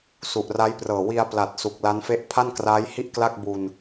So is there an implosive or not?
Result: no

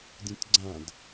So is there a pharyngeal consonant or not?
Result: no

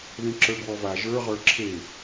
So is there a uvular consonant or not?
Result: yes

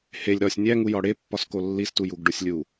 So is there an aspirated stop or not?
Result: no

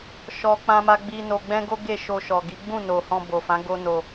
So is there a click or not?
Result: no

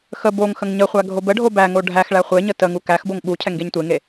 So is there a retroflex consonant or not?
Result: yes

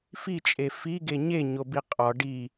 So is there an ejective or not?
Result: yes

